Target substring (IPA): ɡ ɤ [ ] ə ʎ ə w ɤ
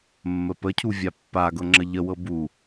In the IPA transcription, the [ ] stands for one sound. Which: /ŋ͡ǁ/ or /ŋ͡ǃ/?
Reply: ŋ͡ǁ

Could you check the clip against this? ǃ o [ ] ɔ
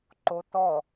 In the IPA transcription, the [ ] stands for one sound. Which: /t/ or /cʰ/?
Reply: t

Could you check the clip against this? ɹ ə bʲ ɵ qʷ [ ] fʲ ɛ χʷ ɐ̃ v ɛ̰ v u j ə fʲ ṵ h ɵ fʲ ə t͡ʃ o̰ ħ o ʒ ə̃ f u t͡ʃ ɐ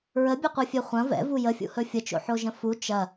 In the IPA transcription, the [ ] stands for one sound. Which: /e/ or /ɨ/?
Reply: ɨ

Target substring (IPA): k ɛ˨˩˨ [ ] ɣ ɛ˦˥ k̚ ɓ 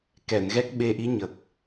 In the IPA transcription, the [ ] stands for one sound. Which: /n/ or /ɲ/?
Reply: n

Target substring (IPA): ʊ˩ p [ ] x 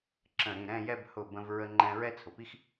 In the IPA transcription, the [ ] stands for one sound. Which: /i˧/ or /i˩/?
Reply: i˧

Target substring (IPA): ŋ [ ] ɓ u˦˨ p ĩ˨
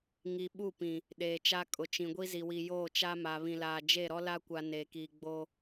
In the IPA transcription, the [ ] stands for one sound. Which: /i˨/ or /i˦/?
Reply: i˨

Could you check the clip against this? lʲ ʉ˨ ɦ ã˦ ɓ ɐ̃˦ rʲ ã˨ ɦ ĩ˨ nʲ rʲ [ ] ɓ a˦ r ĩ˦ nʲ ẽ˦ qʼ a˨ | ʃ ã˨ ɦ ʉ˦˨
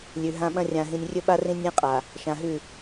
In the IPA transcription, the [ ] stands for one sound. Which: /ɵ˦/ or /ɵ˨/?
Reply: ɵ˦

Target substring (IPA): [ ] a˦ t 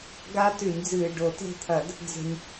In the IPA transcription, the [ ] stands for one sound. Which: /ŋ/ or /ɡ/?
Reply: ɡ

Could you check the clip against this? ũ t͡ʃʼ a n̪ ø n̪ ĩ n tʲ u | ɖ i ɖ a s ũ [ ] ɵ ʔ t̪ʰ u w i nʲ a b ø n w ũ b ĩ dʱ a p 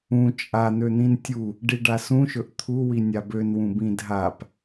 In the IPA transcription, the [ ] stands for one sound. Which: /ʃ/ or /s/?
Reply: ʃ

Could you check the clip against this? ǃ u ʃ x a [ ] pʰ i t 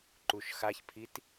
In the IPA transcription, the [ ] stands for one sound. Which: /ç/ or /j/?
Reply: ç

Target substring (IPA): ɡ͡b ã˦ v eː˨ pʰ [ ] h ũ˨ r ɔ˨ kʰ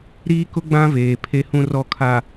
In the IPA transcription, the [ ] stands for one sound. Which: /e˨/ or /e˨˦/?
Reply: e˨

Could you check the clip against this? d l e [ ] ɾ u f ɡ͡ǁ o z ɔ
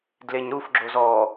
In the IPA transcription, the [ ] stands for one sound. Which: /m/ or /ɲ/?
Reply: ɲ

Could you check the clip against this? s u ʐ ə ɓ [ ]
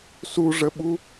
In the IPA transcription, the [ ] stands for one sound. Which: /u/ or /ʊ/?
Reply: u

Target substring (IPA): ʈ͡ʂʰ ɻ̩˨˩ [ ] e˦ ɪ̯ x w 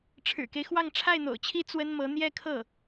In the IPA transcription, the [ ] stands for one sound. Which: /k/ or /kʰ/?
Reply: k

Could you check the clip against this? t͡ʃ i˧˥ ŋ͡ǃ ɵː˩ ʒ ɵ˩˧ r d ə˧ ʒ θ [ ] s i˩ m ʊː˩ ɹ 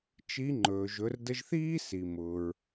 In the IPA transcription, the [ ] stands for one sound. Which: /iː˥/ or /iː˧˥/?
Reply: iː˥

